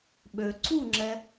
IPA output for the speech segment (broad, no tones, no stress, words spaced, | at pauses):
ɓø ǀuŋ͡ǁɛ